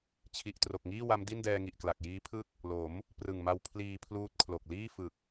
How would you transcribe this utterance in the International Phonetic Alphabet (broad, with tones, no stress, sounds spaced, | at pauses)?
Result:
t͡ɕʰ i˨˩ ʔ t r o˨˩ k̚ ŋ iː˥˩ w a˦˥ m d i˥˩ n d ɛː˧ ŋ i˨˩ ʔ k l a˨˩ k̚ j iː˦˥ pʰ ɯ˥˩ k̚ | l o˩˦ m | p r ɯ˨˩ ŋ m a˧ w pʰ l iː˧ pʰ l uː˦˥ t̚ kʰ l o˨˩ k̚ l iː˥˩ f ɯ˨˩ k̚